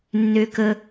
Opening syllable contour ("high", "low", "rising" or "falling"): low